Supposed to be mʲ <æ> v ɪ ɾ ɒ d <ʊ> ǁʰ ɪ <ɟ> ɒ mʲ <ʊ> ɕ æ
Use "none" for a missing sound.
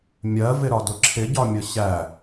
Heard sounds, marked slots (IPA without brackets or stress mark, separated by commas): ɜ, ʊ, ɟ, ʊ